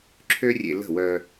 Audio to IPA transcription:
ǁʰ ø˦ rʲ ḛ˧ l ə̤˦˨ w œ˧

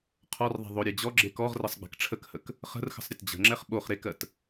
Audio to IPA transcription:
qʰ ɔ r ðˤ ɛ̤ ðˤ o ɾʲ e d͡ʑ ɔ ɡ͡ǁ e k ɔ ʁ r ə sˤ ɡ͡b ɛ̤ k ʈ͡ʂʰ ə k h ə k | χ ə̤ r x ə̤ sˤ ɾʲ ə t d͡ʑ ə̤ ŋ͡ǁ ɛ χ ɓ o χ ɾ e k ɜ t

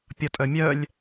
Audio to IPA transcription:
pʲ ʌ tʼ œ mʲ œ lʲ

